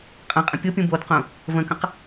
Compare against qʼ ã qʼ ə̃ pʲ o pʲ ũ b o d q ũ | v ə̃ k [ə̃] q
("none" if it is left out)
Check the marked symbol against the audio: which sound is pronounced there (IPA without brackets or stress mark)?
ə̃